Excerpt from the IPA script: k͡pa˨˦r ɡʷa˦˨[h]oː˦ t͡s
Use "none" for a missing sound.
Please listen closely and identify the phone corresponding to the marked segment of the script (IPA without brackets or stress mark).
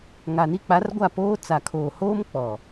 p